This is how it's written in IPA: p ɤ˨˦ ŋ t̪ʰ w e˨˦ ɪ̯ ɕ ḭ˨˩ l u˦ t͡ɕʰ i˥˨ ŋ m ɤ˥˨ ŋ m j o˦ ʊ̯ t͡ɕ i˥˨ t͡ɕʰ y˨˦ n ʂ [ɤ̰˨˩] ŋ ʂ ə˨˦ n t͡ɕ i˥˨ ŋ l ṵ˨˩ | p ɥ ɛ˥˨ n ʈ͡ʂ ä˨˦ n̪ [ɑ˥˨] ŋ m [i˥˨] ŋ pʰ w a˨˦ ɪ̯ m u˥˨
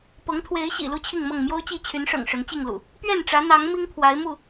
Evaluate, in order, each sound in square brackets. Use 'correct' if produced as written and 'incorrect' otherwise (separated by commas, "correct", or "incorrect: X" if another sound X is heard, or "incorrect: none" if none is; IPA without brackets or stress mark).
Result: correct, incorrect: ɑ˨˦, incorrect: i˦